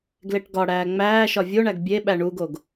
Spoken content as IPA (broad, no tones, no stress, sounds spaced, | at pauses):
ɡ l e ʈ ɡ ɒ ɽ æː ŋ͡m æː ʃ ɒ vʲ o ɳ æ ɡ bʲ e ɓ æ ɳ u ɡ o ɡ